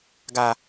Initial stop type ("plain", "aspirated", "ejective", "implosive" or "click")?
plain